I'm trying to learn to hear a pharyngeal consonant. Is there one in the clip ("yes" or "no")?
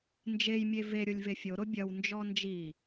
no